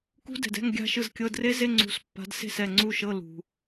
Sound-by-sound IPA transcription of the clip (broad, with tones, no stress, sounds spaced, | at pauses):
k ṳ˦˥ d ɛ̤˨ d ɛ̤˧˥˧ ŋ ɡʲ a̤˥˧ ʃ ɯ˥˩ z kʲ ɤ˧˥˧ d r e˦˥ z e˧˥˧ ŋ͡ǀ ṳ˨˦ s pː a̤˨˦ d s e̤˥˩ s ɛ˥˩ ŋ͡ǀ u˥˩ ʃ ɤ˧˥˧ l ṳ˨